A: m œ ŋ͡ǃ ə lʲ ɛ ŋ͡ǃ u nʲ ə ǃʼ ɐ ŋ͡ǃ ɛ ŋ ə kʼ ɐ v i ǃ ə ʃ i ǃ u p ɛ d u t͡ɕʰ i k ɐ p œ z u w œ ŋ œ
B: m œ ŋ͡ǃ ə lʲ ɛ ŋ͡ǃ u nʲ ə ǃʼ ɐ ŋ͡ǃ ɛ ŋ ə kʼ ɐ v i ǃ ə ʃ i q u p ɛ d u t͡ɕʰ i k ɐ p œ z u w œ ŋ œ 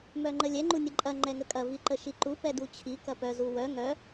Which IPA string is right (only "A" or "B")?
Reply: A